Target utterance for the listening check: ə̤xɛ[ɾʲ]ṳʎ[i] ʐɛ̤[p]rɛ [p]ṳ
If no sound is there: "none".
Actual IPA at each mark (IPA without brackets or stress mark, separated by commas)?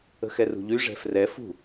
r, y, f, f